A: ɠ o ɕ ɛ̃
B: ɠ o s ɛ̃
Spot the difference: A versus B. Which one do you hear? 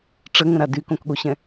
A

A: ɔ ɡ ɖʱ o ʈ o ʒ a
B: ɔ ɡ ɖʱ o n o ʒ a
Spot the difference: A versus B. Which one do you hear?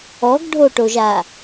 A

